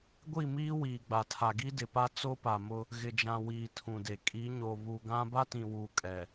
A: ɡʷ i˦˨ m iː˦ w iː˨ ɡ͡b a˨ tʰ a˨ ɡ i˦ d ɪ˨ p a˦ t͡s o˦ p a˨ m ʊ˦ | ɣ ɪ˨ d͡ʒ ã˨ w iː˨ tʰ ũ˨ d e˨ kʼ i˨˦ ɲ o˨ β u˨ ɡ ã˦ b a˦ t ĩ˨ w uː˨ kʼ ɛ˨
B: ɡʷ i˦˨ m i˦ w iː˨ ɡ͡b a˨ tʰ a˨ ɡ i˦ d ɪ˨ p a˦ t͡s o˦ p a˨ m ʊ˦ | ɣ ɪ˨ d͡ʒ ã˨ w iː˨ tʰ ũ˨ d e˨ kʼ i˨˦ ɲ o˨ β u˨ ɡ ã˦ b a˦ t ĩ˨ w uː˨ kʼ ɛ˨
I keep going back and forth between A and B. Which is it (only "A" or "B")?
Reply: A